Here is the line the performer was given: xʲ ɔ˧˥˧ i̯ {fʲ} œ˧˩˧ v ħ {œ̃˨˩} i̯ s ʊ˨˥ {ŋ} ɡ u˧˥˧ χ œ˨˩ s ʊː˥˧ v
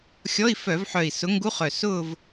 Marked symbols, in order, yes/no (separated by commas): no, no, yes